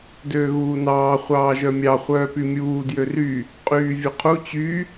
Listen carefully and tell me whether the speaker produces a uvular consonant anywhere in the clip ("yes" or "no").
yes